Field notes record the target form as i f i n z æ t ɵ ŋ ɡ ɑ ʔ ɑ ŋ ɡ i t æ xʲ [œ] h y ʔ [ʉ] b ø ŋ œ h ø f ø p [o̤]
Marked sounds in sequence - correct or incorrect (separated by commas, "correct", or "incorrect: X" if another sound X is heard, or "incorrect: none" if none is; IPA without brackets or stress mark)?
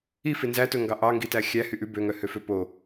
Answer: incorrect: æ, correct, incorrect: o